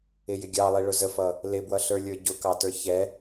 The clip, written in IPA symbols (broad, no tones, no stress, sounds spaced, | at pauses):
ɪ j ɪ ɡʲ ɑ lˠ i ɭ ʊ z ə f ʌ | l ɪ b w ʌ ɬ ə˞ lʲ ə˞ ɟ ʊ k ɑ t ə˞ ç ɛ